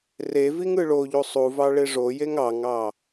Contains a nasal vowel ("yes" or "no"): no